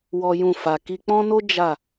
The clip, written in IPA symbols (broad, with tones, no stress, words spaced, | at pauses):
wɔ˦jũ˦˨fa˧ ki˧k͡pɔ̃˦no˦ d͡ʒa˦˨